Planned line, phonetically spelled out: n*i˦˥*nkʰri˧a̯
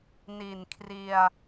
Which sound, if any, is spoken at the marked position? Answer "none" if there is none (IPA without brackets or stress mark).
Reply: i˨˩